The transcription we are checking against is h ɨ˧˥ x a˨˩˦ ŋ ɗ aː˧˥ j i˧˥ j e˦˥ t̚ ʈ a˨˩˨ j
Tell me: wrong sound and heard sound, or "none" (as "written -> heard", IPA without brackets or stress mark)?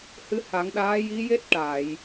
x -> h